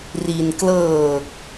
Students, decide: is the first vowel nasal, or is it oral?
oral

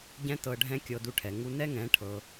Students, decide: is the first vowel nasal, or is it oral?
nasal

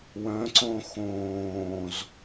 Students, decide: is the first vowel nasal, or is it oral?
nasal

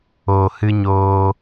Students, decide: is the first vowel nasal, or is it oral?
oral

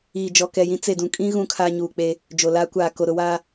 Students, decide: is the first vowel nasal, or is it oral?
oral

